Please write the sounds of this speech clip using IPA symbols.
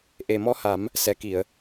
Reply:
ʔ e˨˩ m ɔ˧˥ h a˨˩˦ m | s ɛ˨˩ k i˨˩˨ ə̯

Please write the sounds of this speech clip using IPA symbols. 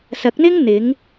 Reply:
s ɐ˨˥ k̚ n̪ ɪ˥ ŋ n̪ ɪ˨˧ ŋ

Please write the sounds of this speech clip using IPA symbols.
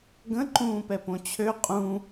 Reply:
ɡ ə̃ ǃ ũː p ɛ p õ t͡ɕʰ ø qʼ ũ

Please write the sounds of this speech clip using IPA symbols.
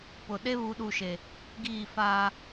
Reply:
p ʊ˨ ɗ e˦ β u˨˦ ɗ u˨ ʃ e˨ | ɡ iː˦˨ f aː˦

